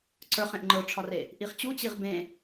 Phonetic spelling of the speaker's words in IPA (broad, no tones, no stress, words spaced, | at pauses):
ǀə˞χ ẽʔŋ͡ǃə˞ʈ͡ʂʰɒre | ʔiχt͡ɕut͡ɕiʁ bẽ